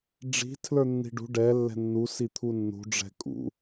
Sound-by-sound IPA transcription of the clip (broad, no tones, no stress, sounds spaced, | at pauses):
ɖ͡ʐ i̤ tʰ l ə˞ nː i̤ ɖ ṳ ɖ ɛ lː ɛ̤ nː u s i t̪ʰ u nː ṳ ɖ͡ʐ ɛ̤ kʼ ṵ